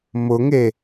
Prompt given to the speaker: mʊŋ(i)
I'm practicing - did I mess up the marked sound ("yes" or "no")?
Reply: yes